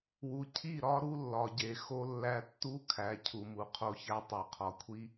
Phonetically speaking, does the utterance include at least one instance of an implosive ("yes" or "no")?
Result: no